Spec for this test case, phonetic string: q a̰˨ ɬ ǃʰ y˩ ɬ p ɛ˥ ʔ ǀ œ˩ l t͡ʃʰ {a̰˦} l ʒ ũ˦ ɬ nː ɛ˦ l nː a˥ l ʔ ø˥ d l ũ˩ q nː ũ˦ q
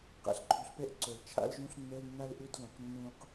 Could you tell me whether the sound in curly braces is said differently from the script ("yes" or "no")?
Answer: no